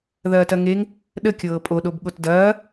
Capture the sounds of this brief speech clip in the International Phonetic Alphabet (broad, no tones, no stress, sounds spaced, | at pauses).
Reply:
ð ɐː t ɐ ŋ e ŋ | ɗ ə kʲ ɤː pʼ o ɗ o b ɠ o t d ɐː